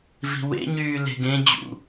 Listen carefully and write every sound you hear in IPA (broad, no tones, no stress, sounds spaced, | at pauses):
v i̤ w ḛ ɲ yː l e̤ ɡ ẽ d͡ʑ ṵ